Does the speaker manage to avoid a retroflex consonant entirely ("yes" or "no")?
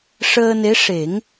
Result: no